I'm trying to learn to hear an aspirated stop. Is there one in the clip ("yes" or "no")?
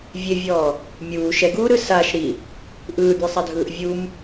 no